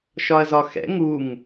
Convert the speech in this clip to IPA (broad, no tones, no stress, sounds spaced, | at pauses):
ʃ ɒ ɐ̯ z ɒ x ɛ̰ ŋ u ŋ